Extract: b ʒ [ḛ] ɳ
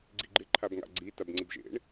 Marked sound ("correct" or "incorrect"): correct